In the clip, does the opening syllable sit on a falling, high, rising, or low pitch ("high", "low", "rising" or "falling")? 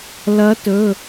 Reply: rising